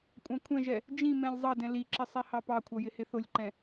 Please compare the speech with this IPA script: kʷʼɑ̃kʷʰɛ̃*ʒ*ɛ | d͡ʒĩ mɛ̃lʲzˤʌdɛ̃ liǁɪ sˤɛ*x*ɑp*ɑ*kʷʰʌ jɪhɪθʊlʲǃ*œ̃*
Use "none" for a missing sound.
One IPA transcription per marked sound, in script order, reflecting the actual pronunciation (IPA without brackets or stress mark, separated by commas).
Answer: ʒ, h, ɑ, ɛ̃